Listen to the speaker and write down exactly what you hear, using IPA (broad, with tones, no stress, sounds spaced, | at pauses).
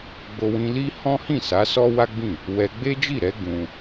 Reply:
ɡ͡b o˧ w ĩ˧ l i˦ h ɔ̃˦ h ĩ˦˨ s a˨˦ s ɔ˦ w a˦ ɡ͡b ĩ˦˨ | w ɛ˧ ɡ͡b e˦ d͡ʒ i˦˨ ɾ ɛ˨˦ ɡ ũ˧